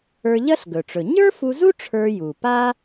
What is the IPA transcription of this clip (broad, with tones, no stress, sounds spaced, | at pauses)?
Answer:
ə˞˧ ʎ ɐ˥ ɬ ɡ ɵ˩ ʈ͡ʂ ɵ˩ ɲ ə˞˥ f u˧ z u˥ ʈ͡ʂʰ ə˞˧ j u˩ p a˥